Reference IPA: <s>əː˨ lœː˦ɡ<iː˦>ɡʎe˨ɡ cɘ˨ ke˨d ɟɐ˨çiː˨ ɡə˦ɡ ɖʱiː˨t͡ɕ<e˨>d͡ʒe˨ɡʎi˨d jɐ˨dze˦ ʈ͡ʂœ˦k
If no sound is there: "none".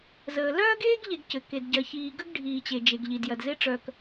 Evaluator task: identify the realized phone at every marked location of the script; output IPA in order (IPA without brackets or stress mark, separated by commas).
z, eː˦, e˨